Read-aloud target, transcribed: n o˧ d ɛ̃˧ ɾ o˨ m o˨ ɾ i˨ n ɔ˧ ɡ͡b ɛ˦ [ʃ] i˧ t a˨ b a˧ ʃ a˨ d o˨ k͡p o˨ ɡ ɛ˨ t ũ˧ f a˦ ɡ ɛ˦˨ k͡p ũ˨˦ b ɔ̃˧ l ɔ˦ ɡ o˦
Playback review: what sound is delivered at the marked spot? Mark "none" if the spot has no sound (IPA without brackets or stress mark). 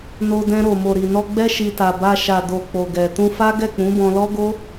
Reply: ʃ